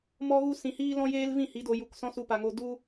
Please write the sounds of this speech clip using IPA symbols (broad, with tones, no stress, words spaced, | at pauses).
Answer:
mɔ˦ɣu˦sĩ˧hiː˦ lɔ̃˦jeː˦lvĩ˦˨ hi˨˦do˧ ju˨k sɔ̃˦su˧pa˨ŋo˧ du˦